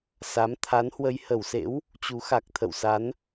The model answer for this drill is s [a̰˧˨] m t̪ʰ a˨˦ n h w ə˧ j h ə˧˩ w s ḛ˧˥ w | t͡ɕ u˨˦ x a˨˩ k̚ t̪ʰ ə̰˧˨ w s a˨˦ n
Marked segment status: incorrect: a˨˦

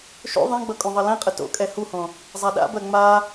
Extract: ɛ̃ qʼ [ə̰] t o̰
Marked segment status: incorrect: ə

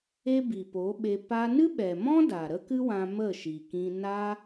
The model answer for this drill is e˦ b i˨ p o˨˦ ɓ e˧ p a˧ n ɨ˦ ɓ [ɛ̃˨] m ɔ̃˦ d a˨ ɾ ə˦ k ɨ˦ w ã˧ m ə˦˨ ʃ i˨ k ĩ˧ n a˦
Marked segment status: incorrect: ɛ˨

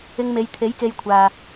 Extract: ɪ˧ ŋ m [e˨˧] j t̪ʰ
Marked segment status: correct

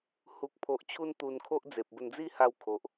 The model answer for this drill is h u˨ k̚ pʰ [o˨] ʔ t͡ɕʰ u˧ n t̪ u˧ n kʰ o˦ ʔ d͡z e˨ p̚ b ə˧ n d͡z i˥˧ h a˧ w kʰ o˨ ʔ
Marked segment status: correct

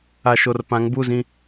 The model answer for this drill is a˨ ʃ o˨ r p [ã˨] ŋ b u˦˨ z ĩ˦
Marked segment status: incorrect: ã˨˦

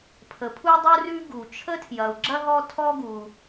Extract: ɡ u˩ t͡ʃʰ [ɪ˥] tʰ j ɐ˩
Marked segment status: incorrect: ə˥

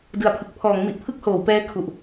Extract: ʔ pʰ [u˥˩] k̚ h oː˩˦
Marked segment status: incorrect: ɯ˥˩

